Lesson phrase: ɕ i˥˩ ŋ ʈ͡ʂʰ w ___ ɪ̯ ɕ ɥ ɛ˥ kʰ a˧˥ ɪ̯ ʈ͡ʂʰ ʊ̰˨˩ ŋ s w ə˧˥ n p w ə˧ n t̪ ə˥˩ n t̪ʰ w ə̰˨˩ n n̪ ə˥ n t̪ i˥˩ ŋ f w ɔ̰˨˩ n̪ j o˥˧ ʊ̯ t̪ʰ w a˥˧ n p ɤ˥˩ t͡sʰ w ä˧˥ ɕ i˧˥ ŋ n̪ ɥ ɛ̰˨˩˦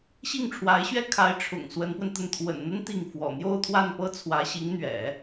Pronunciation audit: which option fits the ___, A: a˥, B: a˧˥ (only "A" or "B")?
B